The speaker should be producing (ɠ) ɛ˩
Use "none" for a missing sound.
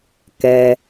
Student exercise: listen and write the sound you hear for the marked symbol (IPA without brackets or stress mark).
k